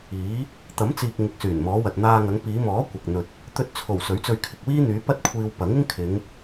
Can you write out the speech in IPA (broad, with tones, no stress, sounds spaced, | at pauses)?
iː˨˥ | t̪ ɐ˨˥ m t͡s iː˨ k̚ ŋ ɪ˨ k̚ s yː˨˩ n m ɔː˨˧ w ɐ˨ t̚ n̪ aː˧ ŋ ɐ˨˧ ŋ p iː˨˧ m ɔː˨˥ kʷ ɐ˨ k̚ n̪ ɵ˨ t̚ | t̪ ɵ˧ t̚ t͡sʰ o˨˩ w s ɵ˨˥ ɥ t͡s ɵ˧ ɥ kʰ ɪ˨ k̚ w iː˥ n̪ yː˨˧ p ɐ˥ t̚ kʷʰ iː˧ w p ɐ˨˥ ŋ ɪ˥ ŋ kʰ ɪ˨˧ ŋ